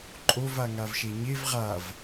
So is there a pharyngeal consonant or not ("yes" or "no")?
no